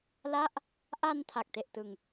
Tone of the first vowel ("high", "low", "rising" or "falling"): falling